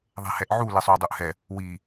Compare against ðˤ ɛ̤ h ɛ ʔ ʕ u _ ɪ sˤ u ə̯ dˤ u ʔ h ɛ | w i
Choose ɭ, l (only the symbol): l